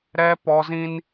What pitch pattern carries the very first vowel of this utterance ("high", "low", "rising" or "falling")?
high